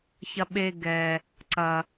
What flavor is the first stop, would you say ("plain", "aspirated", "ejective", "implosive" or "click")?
implosive